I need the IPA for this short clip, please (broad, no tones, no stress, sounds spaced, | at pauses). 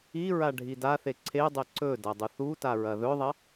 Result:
i ɹ a ɖʱ i d a θ e ǀʰ e dˤ e ǀ ɵ d ɐ dˤ u θ u t a ɹ ɐ ð ɵ ðˤ ɐ